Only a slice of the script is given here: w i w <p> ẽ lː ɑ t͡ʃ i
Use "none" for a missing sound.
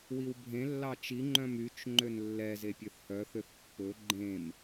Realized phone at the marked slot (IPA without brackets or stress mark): bʱ